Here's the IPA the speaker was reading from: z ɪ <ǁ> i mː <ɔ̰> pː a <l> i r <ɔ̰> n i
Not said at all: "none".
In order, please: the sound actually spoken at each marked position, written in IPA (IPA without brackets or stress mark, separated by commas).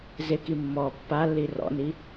k, ɔ, lː, ɔ̰